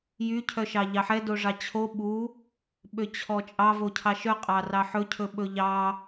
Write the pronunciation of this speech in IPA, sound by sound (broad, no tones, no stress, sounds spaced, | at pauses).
j y cʰ œ ʃ ɑ ʎ ɑ ħ ɛ d o ʐ ɑ t͡ɕʰ o ɓ u | ɓ ø t͡ɕʰ ɔ t͡ʃʼ ɑ v o cʰ ɑ ʃ œ qʼ ɑ r ɑ ħ ɵ cʰ ɵ ɓ ɵ ʎ ɑ